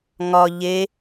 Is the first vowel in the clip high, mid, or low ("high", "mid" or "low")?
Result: low